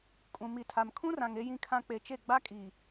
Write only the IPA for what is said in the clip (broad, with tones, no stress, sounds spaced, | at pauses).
kʼ ũ˨ m i˨ tʰ a˨ m kʰ ũ˦ r ã˨ ŋ e˦ j ĩ˦ kʰ ã˦ k͡p e˨ t͡ʃ e˦˨ ɡ͡b a˦ kʼ iː˨